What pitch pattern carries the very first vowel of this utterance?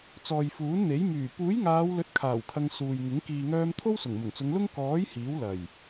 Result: low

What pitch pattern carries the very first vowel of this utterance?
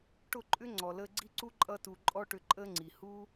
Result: falling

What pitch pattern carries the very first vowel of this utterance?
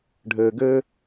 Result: low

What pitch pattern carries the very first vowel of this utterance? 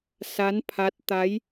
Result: rising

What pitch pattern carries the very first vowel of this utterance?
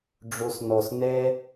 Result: low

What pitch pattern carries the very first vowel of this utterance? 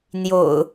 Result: low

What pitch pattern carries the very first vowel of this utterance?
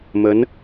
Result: rising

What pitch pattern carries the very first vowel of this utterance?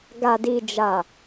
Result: low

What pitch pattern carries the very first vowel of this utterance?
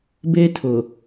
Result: high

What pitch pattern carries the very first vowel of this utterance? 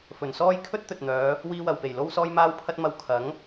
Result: low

